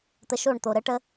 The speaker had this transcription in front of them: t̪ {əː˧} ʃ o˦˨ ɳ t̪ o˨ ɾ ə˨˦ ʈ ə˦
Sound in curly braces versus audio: incorrect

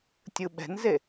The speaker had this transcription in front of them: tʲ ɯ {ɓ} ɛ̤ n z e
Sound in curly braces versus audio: correct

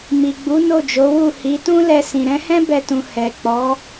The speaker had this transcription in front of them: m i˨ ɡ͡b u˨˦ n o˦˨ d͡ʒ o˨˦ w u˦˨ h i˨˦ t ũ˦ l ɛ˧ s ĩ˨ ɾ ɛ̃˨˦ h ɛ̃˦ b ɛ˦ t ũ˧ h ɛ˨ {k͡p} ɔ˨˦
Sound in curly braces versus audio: correct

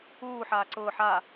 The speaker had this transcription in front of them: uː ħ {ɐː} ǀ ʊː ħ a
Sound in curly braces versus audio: incorrect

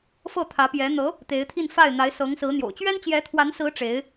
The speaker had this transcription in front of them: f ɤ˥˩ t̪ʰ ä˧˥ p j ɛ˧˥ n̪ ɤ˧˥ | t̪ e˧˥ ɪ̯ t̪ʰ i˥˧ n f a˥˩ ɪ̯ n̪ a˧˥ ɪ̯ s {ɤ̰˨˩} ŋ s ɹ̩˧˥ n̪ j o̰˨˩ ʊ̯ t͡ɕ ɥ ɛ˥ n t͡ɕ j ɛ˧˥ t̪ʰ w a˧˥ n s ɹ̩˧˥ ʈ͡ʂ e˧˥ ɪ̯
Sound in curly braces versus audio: incorrect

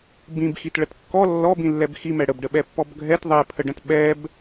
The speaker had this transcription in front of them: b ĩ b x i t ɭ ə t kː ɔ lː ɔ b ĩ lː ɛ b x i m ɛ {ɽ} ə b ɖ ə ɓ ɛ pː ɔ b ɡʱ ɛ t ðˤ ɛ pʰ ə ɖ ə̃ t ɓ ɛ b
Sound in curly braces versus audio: correct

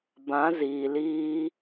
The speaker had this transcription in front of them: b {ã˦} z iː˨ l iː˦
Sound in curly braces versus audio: incorrect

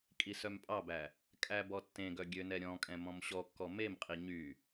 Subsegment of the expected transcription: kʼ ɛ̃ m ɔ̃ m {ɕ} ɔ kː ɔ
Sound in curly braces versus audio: correct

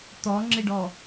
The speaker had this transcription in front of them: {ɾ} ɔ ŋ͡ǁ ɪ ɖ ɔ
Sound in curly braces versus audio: incorrect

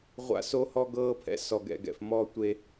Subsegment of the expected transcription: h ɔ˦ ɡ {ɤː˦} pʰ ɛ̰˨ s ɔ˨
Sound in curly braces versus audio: correct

